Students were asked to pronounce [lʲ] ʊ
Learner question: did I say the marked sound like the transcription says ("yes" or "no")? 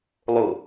no